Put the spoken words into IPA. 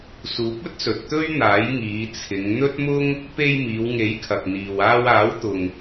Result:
s uː˨˥ p̚ ɵ˥ t̚ s ɵ˨ t̚ t̪ ɵ˥ ɥ n̪ aː˨˥ j ŋ iː˨˧ t͡sʰ ɪ˨˧ ŋ n̪ ɵ˥ t̚ m ʊ˥ ŋ | p e˧ j m iː˨˧ w ŋ e˨˥ j kʰ ɐ˨ k̚ n̪ iː˨ w aː˧ w aː˨˥ w t̪ ʊ˨ ŋ

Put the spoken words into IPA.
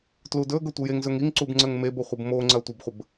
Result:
t l u d ɵ ɡ ɵ tʷ ə j e ŋ z ɵ ŋ i ŋ ǀ u b ŋ͡ǀ ə ŋ m e b o χʷ ə b m o ŋ͡ǀ ɐ tʷ ə b χʷ ə b

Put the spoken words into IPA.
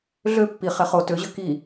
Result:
ɮ ø pː i χ ɛ χ o t ø ʑ ø k i

